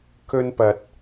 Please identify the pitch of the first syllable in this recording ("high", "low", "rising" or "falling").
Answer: high